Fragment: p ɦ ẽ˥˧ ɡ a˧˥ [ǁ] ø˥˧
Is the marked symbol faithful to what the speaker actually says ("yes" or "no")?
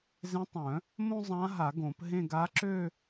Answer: yes